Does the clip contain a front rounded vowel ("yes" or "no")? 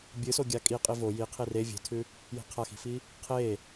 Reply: no